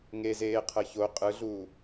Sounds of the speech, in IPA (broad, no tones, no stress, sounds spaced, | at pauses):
ŋ e z eː qʰ ɤ ç o qʼ ɯ ɮ uː